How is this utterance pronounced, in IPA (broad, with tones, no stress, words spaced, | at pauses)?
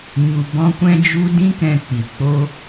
ɲu˨ bɔ̃˧kʷɛ̃˧d͡ʒu˧ dĩ˦kɛ̃˧k͡pi˨ k͡po˧